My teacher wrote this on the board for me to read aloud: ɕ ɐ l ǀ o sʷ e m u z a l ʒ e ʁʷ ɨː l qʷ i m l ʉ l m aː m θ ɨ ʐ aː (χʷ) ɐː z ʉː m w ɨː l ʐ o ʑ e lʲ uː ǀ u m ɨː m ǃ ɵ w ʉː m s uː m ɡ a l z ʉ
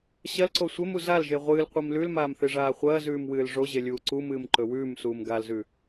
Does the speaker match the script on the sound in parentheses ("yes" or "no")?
yes